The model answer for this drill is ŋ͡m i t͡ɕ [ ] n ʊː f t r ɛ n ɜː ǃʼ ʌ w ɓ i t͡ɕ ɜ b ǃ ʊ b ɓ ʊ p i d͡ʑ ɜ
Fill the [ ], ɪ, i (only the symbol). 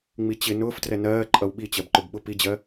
ɪ